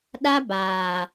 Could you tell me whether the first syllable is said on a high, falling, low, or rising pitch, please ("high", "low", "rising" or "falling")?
high